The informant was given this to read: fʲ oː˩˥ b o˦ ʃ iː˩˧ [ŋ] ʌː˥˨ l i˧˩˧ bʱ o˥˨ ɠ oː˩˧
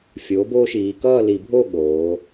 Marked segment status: incorrect: k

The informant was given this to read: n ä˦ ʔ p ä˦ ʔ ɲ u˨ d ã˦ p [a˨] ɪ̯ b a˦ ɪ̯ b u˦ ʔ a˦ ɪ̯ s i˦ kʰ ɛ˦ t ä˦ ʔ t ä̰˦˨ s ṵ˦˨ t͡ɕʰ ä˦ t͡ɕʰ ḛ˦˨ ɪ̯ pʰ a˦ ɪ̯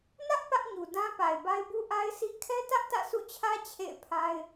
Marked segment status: correct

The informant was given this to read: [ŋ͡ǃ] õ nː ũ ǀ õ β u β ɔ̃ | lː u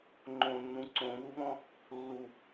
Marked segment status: correct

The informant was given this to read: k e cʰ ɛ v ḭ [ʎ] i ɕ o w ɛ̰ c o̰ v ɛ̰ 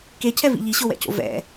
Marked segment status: correct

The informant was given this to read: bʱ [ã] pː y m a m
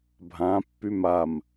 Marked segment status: correct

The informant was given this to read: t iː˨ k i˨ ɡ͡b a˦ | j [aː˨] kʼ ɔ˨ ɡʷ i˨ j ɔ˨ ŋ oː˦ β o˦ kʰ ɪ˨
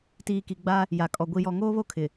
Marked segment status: incorrect: a˨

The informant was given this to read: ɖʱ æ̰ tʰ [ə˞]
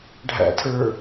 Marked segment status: correct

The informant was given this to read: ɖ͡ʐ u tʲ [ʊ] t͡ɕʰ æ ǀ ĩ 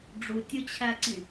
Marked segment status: correct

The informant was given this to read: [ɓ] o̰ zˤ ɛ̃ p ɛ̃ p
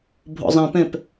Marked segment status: incorrect: bʱ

